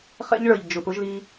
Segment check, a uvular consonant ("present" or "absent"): present